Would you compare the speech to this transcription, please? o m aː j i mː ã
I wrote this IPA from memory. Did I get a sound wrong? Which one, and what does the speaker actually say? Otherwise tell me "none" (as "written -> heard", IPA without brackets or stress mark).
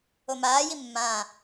none